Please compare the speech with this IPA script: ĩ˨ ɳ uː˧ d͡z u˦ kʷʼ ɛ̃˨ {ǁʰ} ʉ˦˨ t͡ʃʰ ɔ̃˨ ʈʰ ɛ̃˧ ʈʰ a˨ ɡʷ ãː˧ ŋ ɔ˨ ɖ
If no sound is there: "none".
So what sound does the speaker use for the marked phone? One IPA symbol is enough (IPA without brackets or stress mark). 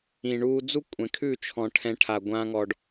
kʰ